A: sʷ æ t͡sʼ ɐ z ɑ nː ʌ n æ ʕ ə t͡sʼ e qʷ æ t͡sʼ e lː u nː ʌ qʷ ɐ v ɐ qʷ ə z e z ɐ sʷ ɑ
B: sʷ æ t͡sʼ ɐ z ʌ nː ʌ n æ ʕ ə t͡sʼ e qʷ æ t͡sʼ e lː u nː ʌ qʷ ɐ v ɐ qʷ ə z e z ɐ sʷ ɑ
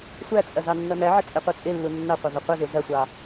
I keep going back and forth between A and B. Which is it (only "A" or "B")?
A